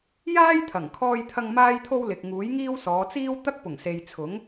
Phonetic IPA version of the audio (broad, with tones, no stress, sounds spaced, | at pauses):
j aː˥ j t̪ʰ ɐ˨˩ ŋ kʰ ɔː˧ j t̪ʰ ɐ˧ ŋ m aː˥ j t̪ʰ o˥ w l ɪ˨ k̚ ŋ uː˨˥ j ŋ iː˥ w s ɔː˨˧ t͡s iː˥ w t̪ ɐ˥ k̚ p ʊ˨˩ ŋ s e˨ j t͡sʰ ʊ˨˥ ŋ